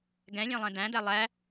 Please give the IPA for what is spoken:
ɡ ɛ̃ lʲ æ̃ lˠ ɛ̃ d æ̃ d æ lˠ æ

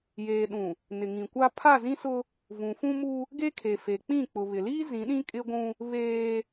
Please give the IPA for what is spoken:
j eː˨ ɗ ũ˨ | n ɪ˨ ŋ ĩ˨ kʷ a˦ pʰ a˦˨ z ĩ˦ s ʊ˦ | v ũ˨ f ũ˦ m u˦ | ɡ e˦ kʰ e˨ f e˨ k͡p ĩ˦˨ k͡p ʊ˨ β ɪ˨ l iː˦ z ĩ˨˦ ɗ ĩ˦ kʼ ɪ˦ ɡʷ ũ˦ | β eː˦

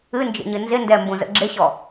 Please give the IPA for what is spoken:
ɨ n d͡ʒ ə̰ ɲ ɨ n z ɪ n d ɛ m b ũ z ə̰ ɡ͡ǁ ɪ ɕ ɔ

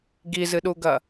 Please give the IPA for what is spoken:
ɡ i z ɨ ɗ u ɡ ɐ

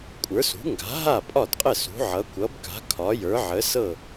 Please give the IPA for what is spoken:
kʷʼ ə˞˩˥ s ṳ˩˥ ŋ ɡ a̤˩˥ ɦ a˥˩ pʼ ɒ˥˩ d qʼ ə˥˩ s ṳ˩˥ ʕ ʌ˩˥ kʷ ʌ˩˥ b k a̤˩˥ kʰ ɒ˩˥ j ə˞˩˥ ʕ ə˩˥ s ɤ˥˩

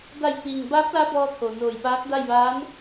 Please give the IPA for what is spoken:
d a˧˩ j t̪ iː˩ ŋ b aː˧˥ p̚ l a˧˥ b ɔː˧ t̪ʰ o˩ n oː˧˩ j p aː˧˥ k̚ d a˥˨ j ʋ aː˧˥ n

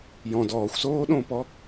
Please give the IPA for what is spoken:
j ɔ̃ d ɔː xʷ s oː ɗ õː p ɔ

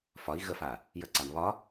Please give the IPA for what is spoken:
f ɒ i̯ ɣ ə f a | j ə ǀ a m β ɒ

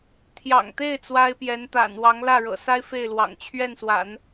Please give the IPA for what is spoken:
t̪ʰ j ɑ̰˨˩ ŋ t̪ e˥˩ ɪ̯ t͡s w a˥ ɪ̯ p j ɛ˧˥ n t̪ a̰˨˩ n w ɑ˧˥ ŋ l ä˥˩ ɻ ɤ̰˨˩ s a˥ ɪ̯ f e˥˩ ɪ̯ l w ɑ̰˨˩ ŋ t͡ɕʰ ɥ ɛ˥˩ n s w a̰˨˩˦ n

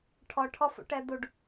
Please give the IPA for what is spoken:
ʈʰ ɔ ʈʰ ɔ f ṵ ʈ ɛ d̪ u ɖ

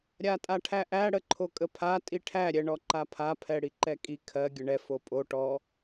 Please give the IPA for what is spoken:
ɾʲ a tʼ a ʈʰ æ ʔ æ ɽ ə ǃʰ o kʼ ə pʰ a tʼ i ʈʰ æ ɾʲ ɛ ɳ ɔ ǃ a pʰ a pʰ ɛ ɽ i ǃ ɛ kʼ i kʰ ɜ ɡʲ ə ɳ ɛ f o pʼ o ʈ ɔ

